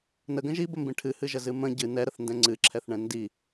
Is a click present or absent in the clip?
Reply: present